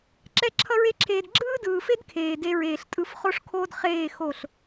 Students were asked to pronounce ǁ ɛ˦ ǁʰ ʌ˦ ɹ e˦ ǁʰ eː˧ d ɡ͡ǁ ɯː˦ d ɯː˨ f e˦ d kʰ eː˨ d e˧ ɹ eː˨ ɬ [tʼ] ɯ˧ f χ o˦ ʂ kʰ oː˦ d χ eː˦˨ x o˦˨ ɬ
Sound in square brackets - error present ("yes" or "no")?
no